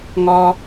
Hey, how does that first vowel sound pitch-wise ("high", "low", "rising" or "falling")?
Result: high